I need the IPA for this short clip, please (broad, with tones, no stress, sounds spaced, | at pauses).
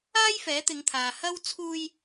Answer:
aː˥ j f ɛː˨˥ t̪ ɪ˨˧ ŋ t̪ʰ aː˨ h ɐ˥ w t͡sʰ uː˧ j